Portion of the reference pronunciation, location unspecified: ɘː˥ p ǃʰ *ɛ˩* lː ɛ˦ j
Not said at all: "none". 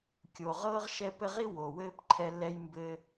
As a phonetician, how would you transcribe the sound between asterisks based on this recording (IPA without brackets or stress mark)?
ɛ˦